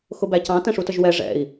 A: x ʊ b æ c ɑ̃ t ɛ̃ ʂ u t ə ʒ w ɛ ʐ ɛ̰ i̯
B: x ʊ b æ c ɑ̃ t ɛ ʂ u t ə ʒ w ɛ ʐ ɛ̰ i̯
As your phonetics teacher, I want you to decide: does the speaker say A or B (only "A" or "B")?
A